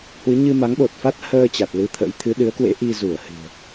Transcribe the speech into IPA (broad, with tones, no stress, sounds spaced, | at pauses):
h w ɨ˨˦ ɲ ɨ˧ m a˨˦ ŋ ɓ o˨˩ t̚ f a˦˥ t̚ h əː˧ t͡ɕ a˨˩ t̚ l ɨ˧ t̪ʰ ə̰˧˥ j t̪ʰ ɨ˨˦ ɗ ɨ˨˦ ə̯ k w ḛ˧˥ ʔ i˧ z u˧˩ ə̯ h ɨ̤˨˩ ə̯